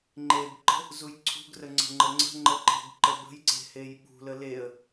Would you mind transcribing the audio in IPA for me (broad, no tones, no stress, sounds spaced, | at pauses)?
ŋ͡ǃ e b ǃ ə̤ | z u j ǀʰ ṳ ɡ r ə ŋ͡ǀ ə̤ ŋ͡ǃ ə ŋ͡ǀ ə̤ ŋ͡ǃ ə ǃ e̤ ɡ ǃ ə b ə̤ j ǀ e̤ h e j ɓ ṳ l ə l e ə̯